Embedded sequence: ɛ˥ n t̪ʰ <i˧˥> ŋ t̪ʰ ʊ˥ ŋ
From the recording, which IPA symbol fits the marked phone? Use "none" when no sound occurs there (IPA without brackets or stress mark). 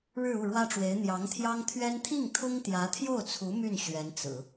i˥˩